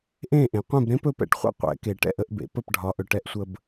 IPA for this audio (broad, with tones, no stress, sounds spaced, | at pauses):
ʔ ẽ˥˩ ʔ ẽ˩ qʷ ẽ˥˩ b ɾ ẽ˥ p ɵ˧ p ɛ̰˧ ʈ χʷ ɛ̰˥ qʷ ɛ̰˩˥ k e˩ ʈ ɛ̰˥˩ ʔ ə˧ ʔ b ḛ˩˥ p ə˥˩ p ɖʱ ɒ˩˥ ʔ ɵ˩ ʈ ɛ˧ ʔ sʷ ə˧ b